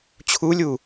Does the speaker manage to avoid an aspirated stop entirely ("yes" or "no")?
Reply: no